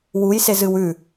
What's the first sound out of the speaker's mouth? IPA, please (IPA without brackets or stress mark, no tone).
w